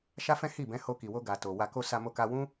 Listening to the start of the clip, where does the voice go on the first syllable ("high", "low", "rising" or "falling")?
high